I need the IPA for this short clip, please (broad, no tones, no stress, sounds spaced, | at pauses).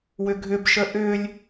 w ʏ ɡʱ ʏ b ʃ ə ʔ ʏ lʲ